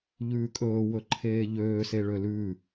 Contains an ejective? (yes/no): yes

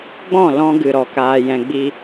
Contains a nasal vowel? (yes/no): yes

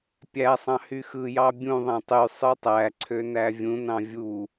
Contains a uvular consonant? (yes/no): no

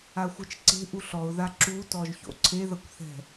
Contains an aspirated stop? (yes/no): yes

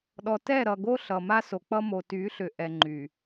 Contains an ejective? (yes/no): no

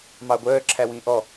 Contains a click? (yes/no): yes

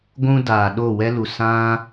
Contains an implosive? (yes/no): yes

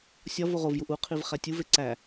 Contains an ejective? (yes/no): no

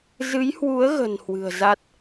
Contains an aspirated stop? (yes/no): no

